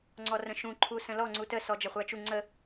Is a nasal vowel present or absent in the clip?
present